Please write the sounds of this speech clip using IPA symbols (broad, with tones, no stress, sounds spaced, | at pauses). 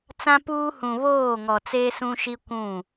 t͡s ã˦ p uː˦ h ũ˨ β oː˦˨ ŋ ɔ˨ t͡s eː˦ s ũ˦ ʃ i˦ kʷ ũ˦˨